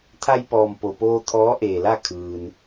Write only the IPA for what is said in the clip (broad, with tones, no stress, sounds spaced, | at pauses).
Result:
t̪ʰ a˧ j p ɔː˩ m p o˩ p oː˧ t̪ʰ ɔː˧˥ ʔ eː˩ l a˥˨ kʰ ɯː˩ n